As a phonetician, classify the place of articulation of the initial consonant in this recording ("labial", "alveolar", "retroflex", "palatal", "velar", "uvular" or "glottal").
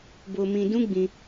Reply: labial